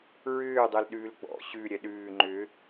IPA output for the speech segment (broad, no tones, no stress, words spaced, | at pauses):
ɹʏːdˤɛl ɗʉːlɡ͡bɔ̰ ɕʉ ɾʲɛɗʉː ŋ͡ǃʏ